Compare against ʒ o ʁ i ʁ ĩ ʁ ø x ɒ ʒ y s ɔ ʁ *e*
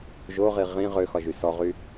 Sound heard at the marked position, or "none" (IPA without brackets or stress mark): y